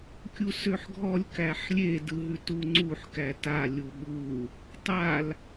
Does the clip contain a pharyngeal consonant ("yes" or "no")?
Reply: yes